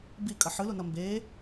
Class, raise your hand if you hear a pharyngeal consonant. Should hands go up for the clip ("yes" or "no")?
yes